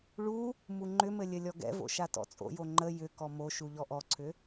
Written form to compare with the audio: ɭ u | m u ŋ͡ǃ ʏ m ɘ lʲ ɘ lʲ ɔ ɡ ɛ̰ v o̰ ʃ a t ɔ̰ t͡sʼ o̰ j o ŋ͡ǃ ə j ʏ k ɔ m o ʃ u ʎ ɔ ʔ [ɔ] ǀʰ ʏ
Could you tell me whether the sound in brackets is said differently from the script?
no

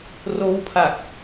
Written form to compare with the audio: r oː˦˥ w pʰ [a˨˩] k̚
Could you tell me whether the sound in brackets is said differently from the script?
no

